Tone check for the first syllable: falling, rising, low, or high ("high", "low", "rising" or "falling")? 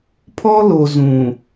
high